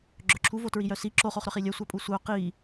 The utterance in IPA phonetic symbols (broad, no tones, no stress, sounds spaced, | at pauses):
ɡ͡ǁ œ ǁʰ u v o t ɹ i j œ s i ǁ o χ o χ ɾ œ χ i lʲ œ sʷ a pʼ u sʷ œ q i